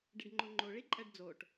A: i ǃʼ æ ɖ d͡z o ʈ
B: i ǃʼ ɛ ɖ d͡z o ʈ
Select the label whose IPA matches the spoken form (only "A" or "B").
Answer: B